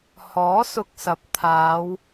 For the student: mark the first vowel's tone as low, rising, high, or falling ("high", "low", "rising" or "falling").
rising